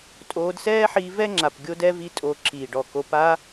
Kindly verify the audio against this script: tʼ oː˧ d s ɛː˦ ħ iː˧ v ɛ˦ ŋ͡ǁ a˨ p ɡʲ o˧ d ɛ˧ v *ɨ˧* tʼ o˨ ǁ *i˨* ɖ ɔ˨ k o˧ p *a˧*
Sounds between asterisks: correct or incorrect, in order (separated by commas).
incorrect, incorrect, correct